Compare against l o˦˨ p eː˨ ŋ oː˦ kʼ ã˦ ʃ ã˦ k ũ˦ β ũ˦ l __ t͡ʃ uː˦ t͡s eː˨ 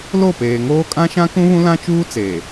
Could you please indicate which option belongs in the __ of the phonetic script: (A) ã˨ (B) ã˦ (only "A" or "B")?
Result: B